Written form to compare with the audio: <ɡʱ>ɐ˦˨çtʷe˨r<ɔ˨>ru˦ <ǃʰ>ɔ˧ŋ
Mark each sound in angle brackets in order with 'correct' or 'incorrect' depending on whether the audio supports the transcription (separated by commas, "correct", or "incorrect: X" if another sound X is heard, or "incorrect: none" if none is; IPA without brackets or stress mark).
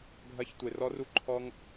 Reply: correct, incorrect: ɔ˦, correct